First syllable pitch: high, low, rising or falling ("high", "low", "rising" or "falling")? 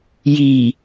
low